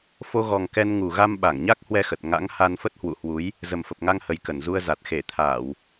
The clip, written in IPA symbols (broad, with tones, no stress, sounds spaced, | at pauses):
f o˧ ɣ ɔ˨˩ ŋ k ɛ˧ n ŋ u˨˩ ɣ a˧ m ɓ a˧˩ ŋ ɲ a˦˥ k̚ h w ɛ˧ x ə˨˩ t̚ ŋ a̰˧˥ ŋ h a˧ n f ə˦˥ t̚ h w ṵ˧˨ h w u˨˦ j | z ə˨˩ m f ə˨˩ p̚ ŋ a˧ ŋ h ə˨˩ j k ə˧˩ n z u˧ ə̯ z a˨˩ t̚ x e˧˩ t̪ʰ aː˧˩˨ w